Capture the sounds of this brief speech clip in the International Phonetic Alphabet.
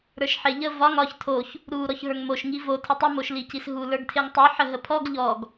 ɾə˞ʃħeʎə vɒŋ ɒç tʰoç | ɾu ɾɔçɦə˞ŋmoʃ ŋivo tʰətˤə moʃlicisɦu lə˞ɡtʰeŋtˤu ħəɦəpʰɔɡ ʎɔɡ

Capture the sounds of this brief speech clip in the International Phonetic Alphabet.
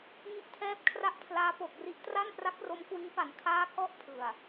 ŋi˦˥ʔtʰɛː˦˥p̚ kʰra˥˩ʔpʰlaː˦˥ po˨˩k̚ri˦˥ʔtra˥˩npra˦˥k̚ ro˦˥mkwiː˦˥pa˩˦n kʰaː˦˥kɔ˦˥ʔpʰɯ˨˩a̯

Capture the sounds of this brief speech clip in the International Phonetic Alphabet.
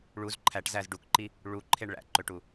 ɭuz ǃʰæʈzæz ɖukǃi | ɭuǃʰeɳ ɭæ̰ǃøʈu

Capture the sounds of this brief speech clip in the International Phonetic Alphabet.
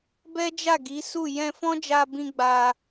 bɛ˦d͡ʒa˦˨ɡi˨˦su˦˨ jɛ̃˧fɔ̃˦ d͡ʒa˧bĩ˧ɡ͡ba˧

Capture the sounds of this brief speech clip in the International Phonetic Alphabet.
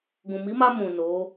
ɡũ˨mi˨˦ma˧ mũ˨ no˨˦

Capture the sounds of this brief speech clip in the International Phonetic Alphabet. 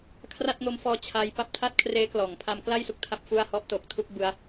kʰra˥˩t̚ŋo˧mfɔː˧ t͡ɕʰa˦˥j pa˦˥p̚tʰa˥˩t̚ kʰreː˦˥klɔː˩˦ŋ pʰa˦˥mkla˥˩jsu˦˥k̚ tʰa˦˥p̚fu˥˩a̯ hɔ˦˥ʔ to˨˩k̚tʰu˥˩k̚ bɯ˦˥a̯

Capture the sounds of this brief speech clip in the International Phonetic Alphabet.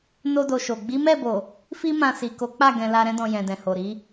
no˦do˧ʃo˨ ɡ͡bi˨˦mɛ˦˨bo˨ | fi˦mã˧si˨ ko˨˦k͡pa˦˨ ɡɛ̃˧la˧ɾɛ̃˦ dɔ̃˧jɛ̃˨dɛ̃˨ho˨ ɾi˨˦

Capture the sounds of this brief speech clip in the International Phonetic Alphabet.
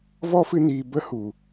vɔ˦fɨ˧niː˨ bə˦hu˨

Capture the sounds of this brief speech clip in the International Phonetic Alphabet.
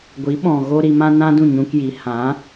ɡʷi˨˦ɓɔ̃˨ ɣo˦ɾi˧mã˦ nã˦dũ˦˨ɲũ˧kji˨˦ hã˨˦

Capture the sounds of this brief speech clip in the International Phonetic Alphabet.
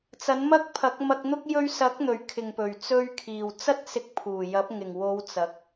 t͡sɐ˨˥nmɐ˥k̚pʰɐ˨˥k̚ mɐ˧k̚n̪ʊ˥k̚ jɵ˧ɥsɐ˨˥k̚n̪ɵ˨˩ɥ kʰɪ˨ŋpɵ˨˩ɥ t͡sɵ˧ɥkʰiː˨˩w t͡sɐ˥t̚sɪ˧k̚pʰuː˨˩jɐ˨˥p̚ ŋɪ˨˩ŋwo˨˧w t͡sɐ˨˥k̚

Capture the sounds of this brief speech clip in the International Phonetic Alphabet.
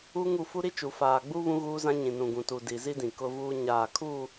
u˦ŋu˦˨ fu˦ɾi˦t͡ʃu˨ faː˨ɡ͡bu˦ βũ˦ɣuː˦zã˦ ɲĩ˨nũ˨ɡũ˨tu˨ di˨zi˦ dĩ˨kʊ˦vuː˦ɲaː˦˨ kʰu˦˨

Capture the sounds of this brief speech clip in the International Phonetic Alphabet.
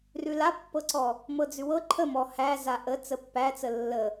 rʉlapːɤǀɔ | mɤd͡zʉwɤ ǃʰəmɔ hæ zaʔə t͡səpːæt͡sə lːə

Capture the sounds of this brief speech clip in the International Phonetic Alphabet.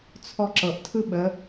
t͡sʰɔǁɤʔtʰɯ ɓə

